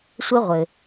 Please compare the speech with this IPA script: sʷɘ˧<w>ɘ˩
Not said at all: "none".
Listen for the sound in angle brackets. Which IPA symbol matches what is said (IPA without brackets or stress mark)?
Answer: ʁʷ